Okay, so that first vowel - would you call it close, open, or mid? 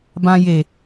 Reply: open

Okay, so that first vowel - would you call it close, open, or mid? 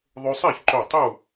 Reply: mid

